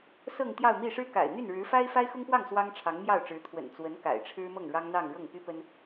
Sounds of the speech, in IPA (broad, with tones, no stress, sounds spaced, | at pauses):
s ɤ˥˧ ŋ t̪ j ɑ˥˧ ʊ̯ m i˥˩ ʂ ɻ̩˥ k a̰˨˩ ɪ̯ n̪ y˥˩ n ɻ ɻ̩˧˥ f a˥ ɪ̯ f a˥ ɪ̯ x ʊ˥ ŋ p w ɑ˥˩ ŋ s w ɑ˥ ŋ ʈ͡ʂʰ ɑ˧˥ ŋ m j ɑ˥˩ ʊ̯ ʈ͡ʂ ɻ̩˧˥ t̪ʰ w ə̰˨˩ n t͡s w ə˧˥ n k a̰˨˩ ɪ̯ ʈ͡ʂʰ ɻ̩˥ m ɤ˥˩ ŋ ɻ ɑ˥ ŋ n̪ ɑ˥˧ ŋ ɻ ɤ˥˩ ŋ p y˥ p ə˥ n